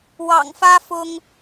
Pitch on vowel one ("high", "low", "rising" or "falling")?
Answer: low